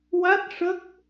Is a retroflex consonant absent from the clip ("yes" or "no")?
no